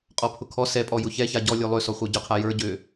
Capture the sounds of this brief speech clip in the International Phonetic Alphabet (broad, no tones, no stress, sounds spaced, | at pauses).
qʼ ɔ pʰ ʊ kʰ ɔ s ɛ pʼ ɔ j ʊ ç ɛ ç a ɟ ɔ lʲ ɵ lˠ ø s ɔ χʷ ə˞ ɟ ʊ qʰ a j ə˞ ɟ ø